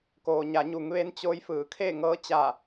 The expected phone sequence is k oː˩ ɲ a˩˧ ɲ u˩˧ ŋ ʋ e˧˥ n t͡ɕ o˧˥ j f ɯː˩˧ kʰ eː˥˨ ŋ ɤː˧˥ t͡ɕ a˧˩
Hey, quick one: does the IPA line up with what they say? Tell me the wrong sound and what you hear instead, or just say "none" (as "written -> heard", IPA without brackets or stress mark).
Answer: none